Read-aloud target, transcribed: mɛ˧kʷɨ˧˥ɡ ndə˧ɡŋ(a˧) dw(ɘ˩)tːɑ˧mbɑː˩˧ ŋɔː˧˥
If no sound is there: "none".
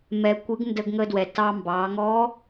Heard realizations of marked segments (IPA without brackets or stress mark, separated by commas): ə˧, ɛ˩